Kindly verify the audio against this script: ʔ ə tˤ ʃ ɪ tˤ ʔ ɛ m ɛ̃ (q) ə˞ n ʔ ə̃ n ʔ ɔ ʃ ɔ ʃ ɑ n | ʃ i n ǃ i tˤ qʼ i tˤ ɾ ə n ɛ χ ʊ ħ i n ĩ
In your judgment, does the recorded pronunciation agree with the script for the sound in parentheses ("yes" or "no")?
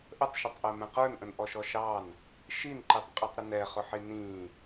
yes